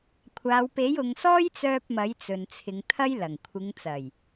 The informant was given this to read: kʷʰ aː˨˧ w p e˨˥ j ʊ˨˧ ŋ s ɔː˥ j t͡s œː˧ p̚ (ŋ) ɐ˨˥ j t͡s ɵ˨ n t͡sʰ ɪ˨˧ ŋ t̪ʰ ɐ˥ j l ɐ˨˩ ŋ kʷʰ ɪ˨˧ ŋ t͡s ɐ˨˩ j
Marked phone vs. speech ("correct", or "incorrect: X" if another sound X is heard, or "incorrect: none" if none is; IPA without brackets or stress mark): incorrect: m